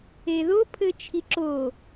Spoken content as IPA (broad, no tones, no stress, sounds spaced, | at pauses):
e ð o pʰ ɘ t͡ʃʰ i ǁ o